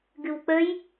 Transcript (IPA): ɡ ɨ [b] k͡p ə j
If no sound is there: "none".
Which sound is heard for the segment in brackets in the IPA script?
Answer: w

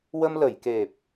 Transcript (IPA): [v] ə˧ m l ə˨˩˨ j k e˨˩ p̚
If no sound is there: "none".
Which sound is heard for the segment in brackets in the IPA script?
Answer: w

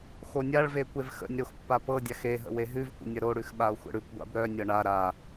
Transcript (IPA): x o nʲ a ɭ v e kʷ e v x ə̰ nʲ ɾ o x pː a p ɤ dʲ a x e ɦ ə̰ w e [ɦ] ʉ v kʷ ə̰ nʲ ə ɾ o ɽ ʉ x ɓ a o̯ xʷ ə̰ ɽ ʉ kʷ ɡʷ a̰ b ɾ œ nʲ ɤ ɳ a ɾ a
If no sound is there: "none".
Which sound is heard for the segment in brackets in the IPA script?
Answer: ɦ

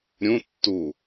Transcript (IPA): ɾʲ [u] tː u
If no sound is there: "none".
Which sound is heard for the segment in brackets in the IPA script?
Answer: ũ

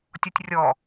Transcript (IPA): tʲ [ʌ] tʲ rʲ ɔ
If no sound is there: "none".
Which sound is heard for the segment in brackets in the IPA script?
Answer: ɔ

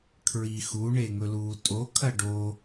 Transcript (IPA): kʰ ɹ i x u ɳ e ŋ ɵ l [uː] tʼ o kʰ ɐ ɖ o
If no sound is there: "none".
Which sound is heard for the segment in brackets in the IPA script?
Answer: uː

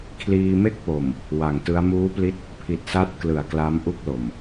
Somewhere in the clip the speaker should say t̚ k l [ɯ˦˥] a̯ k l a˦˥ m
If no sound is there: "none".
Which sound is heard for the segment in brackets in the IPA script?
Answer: ɯ˩˦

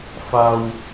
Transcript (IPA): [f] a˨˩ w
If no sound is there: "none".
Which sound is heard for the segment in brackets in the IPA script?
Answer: f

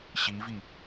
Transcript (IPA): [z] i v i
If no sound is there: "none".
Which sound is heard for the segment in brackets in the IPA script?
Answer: ɕ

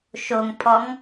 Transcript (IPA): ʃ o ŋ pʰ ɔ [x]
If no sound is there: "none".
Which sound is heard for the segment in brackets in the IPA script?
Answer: ŋ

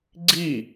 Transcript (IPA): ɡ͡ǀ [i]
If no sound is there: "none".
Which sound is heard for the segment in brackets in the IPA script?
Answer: i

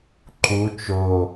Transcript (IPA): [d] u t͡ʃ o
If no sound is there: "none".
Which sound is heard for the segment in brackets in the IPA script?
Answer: ǃ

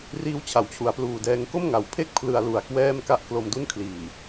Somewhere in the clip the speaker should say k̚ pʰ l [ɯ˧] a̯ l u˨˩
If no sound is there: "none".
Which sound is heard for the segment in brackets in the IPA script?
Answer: ɯ˧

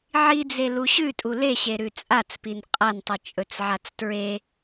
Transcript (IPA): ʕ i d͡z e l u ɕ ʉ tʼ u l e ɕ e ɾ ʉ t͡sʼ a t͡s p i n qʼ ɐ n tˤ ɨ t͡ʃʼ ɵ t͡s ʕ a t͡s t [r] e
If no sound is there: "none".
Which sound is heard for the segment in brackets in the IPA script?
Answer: ɹ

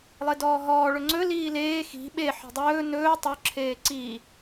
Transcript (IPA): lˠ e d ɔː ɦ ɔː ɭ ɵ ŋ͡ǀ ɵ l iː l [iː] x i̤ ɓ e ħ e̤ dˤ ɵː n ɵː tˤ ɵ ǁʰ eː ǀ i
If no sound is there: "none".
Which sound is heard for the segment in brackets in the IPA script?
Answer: eː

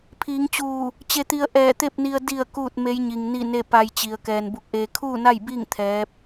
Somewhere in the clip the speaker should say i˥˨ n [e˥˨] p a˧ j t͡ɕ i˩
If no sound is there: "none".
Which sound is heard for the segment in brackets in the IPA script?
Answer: e˥˨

